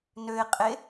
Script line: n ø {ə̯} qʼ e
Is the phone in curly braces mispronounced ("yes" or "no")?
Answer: yes